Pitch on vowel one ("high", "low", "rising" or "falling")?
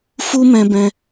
high